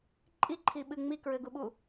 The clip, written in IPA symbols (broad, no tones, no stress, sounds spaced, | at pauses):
ǃʼ i ǃʰ i ɓ ɨ ŋ͡m i k ɹ ɘ ɡ u ɓ u